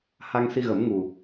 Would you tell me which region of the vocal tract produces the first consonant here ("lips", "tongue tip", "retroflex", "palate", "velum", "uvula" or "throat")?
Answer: throat